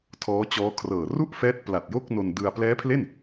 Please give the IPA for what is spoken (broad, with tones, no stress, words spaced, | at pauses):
tʰɔː˦˥t͡ɕɔː˦˥kʰrɤː˨˩ ru˦˥ʔ fɛː˦˥t̚pla˨˩t̚jo˥˩k̚ no˧ndɯ˧a̯ plɛː˦˥pʰle˥˩n